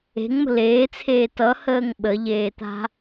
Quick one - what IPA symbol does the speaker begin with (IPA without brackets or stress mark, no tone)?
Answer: e̤